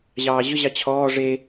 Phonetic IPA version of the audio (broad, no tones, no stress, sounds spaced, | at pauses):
ʑ ɑː ʑ ɵ ʑ ɑ t͡ɕʰ ɔː ʐ e